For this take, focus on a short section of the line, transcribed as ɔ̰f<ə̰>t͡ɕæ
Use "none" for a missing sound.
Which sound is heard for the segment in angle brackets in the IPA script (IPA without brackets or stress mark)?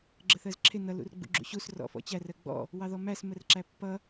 ɔ̰